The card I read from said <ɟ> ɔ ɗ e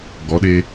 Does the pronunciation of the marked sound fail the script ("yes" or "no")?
yes